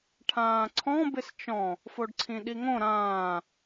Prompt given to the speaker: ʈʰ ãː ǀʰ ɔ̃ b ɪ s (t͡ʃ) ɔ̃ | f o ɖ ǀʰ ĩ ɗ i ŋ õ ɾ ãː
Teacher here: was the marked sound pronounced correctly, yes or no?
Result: yes